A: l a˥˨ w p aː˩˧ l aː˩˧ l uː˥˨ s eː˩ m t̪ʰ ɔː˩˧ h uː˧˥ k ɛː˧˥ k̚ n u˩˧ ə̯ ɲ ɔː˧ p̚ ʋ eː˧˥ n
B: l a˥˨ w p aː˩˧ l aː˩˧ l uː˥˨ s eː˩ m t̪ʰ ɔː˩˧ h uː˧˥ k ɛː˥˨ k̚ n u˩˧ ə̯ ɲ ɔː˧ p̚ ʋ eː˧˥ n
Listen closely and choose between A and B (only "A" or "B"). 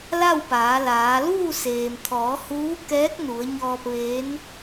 A